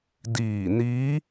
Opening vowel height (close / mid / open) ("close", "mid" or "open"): close